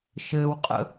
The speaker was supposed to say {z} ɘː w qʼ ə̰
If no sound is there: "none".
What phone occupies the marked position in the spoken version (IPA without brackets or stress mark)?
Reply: ʃ